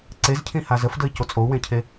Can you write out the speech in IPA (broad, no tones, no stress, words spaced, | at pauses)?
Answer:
ǀezcʰĩha zəfdəi̯co t͡sʼou̯wẽcʰe